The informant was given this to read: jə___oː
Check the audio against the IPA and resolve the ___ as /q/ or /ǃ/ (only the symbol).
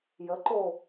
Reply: ǃ